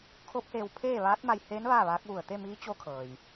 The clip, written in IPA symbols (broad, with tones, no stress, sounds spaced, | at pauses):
kʰ o˧˥ p̚ h eː˧ w pʰ eː˥˨ ʋ aː˧˥ t̚ m a˧ j h eː˧˥ n ʋ aː˥˨ ʋ aː˧˥ k̚ ʋ u˧˩ ə̯ t̪ e˥˨ m iː˧˥ t͡ɕ o˧˥ kʰ ɤː˩ j